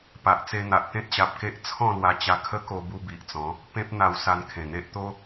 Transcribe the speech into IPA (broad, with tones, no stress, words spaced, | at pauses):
pa˨ʔt͡se˧n̪a˨ʔ t̪ẽ˦t̚ɕa˨p̚ke˦ʔ t͡sʰɔ̃˥˧lwa˧t͡ɕa˧ kʰə˦ko˧bu˧ bi˨ʔt͡sɔ̃˨˦ | pẽ˦p̚n̪a˧w sa˧nkʰẽ˨˩n̪e˦ʔ t̪o˦